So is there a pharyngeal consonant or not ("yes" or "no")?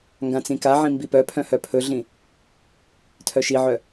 yes